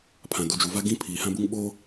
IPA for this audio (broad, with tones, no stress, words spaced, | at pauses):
pʰã˨du˨d͡ʒu˨ va˦ɡĩ˦pʰiː˨hã˦ bu˦ŋ ɓoː˦